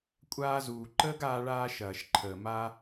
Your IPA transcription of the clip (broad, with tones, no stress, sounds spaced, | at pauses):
kʷʼ aː˧ z uː˨ ǃ əː˦ ɡ aː˧ ɭ aː˧ ʃ ɐː˨ ʃ ǃʰ əː˨ m a˧